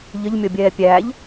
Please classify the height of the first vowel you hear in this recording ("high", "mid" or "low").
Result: mid